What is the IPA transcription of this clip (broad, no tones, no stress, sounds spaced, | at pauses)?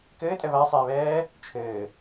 k ɘː tʼ ɛ β a sˤ eː β ɛː | t͡ʃʰ ɘː